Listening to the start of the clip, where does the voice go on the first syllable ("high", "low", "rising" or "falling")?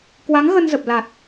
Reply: rising